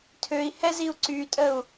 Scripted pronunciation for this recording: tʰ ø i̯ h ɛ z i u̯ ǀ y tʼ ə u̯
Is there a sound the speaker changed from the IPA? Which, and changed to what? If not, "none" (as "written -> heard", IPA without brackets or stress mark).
none